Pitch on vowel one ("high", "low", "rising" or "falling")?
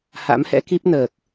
rising